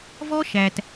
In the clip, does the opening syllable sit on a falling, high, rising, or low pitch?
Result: high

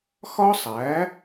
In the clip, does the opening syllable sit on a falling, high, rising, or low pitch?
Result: high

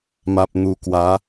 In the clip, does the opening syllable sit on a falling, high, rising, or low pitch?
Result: low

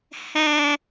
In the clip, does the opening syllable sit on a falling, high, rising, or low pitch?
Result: low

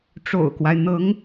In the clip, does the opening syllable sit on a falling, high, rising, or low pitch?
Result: low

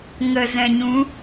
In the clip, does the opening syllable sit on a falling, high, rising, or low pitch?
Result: low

